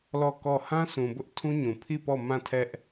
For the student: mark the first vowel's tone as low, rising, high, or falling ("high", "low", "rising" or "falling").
falling